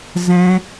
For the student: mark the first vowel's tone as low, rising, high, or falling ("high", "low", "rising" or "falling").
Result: high